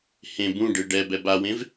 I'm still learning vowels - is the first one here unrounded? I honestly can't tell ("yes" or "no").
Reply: yes